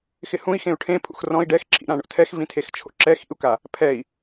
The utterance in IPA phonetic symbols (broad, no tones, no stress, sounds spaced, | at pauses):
x ɪ h ũ i̯ x ẽ u̯ ʈʰ ẽ pʰ ṵ x r ɔ̃ i̯ ɖ ɛ x ǁʰ ḭ ɾ ã ɳ o̰ tʰ ɛ x v ĩ tʰ e x t͡ʃʰ o̰ ǁ ɛ x ḭ u̯ k a | pʰ ɛ i̯